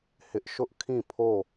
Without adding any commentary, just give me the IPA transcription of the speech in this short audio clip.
hɪ˦ʔ ʃʊ˦ʔ kʰĩ˦˨pʰo˦˨

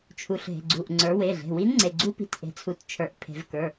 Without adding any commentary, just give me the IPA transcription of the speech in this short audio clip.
t͡ʃʰu˩˧ɬɦe̤˩˧˩ɡ͡ǀu˩˧˩ʔ ŋ͡ǀə˞˩˧we˩˧˩ɮe̤˩˧˩ wi˧˥nŋ͡ǀe˩˧˩ɡ͡ǀu˧˥ pi̤˩˧˩tʔe̤˩˧t͡sʰu˩˧t t͡ʃʰə˞˩˧ʔpʰe̤˩˧vkə˞˩˧˩

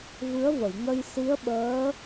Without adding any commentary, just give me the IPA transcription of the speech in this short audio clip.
vɨ˧˥ə̯və˨˩˨jŋə˧j si˧˥ə̯ɓəː˧˥

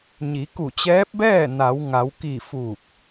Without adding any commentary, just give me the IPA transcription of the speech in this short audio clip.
ɲi˩˧ku˧˩t͡ɕɛː˧˥p̚bɛː˥˨ na˩˧wŋa˩˧wki˧˩ fuː˧˩k̚

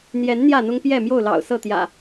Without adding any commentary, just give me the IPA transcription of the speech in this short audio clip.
n̪jɛ˨˦n n̪jä˥˨n̪ʊ˦ŋ pjɛ˥˨mjo˥˨ʊ̯lɑ̰˨˩ʊ̯ sɤ˥˨t̪jä̰˨˩

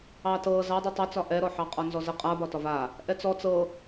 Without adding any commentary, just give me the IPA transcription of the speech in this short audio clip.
ɑtɤ zɑdˤy tˤɑt͡sɒ ʔɛɾɔ ħɑqʼɒnzɔzə qʼabɒ tɒva | ʔɛt͡sɔ t͡sɤ

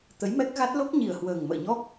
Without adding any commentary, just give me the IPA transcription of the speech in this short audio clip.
t̪ə˨˦jmɛ˦˥k̚ɣa˦˥t̚ lo˦˥k̚ɲi˨˩ə̯hwəː˨˩ŋ mə̰ː˧˨ɲɔ˦˥k̚

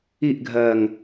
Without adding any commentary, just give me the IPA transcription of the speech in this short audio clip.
iʔɡʱɜːŋ

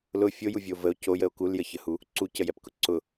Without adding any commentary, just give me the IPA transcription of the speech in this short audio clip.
lʊ fʲojuvʲo vəo̯ cojəo̯ kuljəçəhu | ǀucəjɛpkʊ ǀʊ

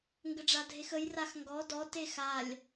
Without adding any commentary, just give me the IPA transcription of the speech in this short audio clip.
ŋɡəɖ͡ʐadʱexəj raxŋɡɔ dɔ texalʲ

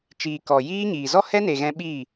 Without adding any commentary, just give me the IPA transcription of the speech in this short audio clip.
t͡ʃiː˨ kɔ˨jiː˦ɲiː˨ zɔ˦hɛ˦ne˨ɣɛ̃˧ ɓiː˦˨

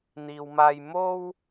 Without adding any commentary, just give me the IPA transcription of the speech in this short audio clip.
n̪iː˨wmaː˧j mo˥w

